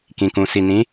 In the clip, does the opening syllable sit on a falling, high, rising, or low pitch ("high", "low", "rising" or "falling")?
low